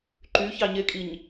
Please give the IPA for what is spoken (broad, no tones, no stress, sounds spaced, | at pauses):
ǃ y ç ɑ ɲ e kʼ i ɲ